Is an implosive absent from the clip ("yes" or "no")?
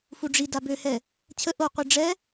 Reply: yes